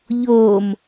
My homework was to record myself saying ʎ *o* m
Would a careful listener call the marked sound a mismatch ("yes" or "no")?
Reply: no